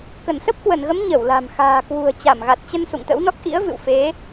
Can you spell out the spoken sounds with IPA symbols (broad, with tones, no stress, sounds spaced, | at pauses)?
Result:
k ə˧˩ n s ə˦˥ p̚ k w ə˧˩ n ɣ ə˨˦ m ɲ ə˧˩ w l a̤˨˩ m x a̤ː˨˩ k w ṳ˨˩ ə̯ t͡ɕ a˧˩ m ɣ a˨˩ t̚ t͡ɕ ə˧ n s ṵ˧˨ ŋ t̪ ə̰˧˥ w n ɔ˦˥ k̚ ʔ ḭ˧˥ ə̯ v ɨ̰˧˨ w f e˨˦